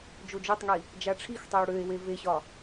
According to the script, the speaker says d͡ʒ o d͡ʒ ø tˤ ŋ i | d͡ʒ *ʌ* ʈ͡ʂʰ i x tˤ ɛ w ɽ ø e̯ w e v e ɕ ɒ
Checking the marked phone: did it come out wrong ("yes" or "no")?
yes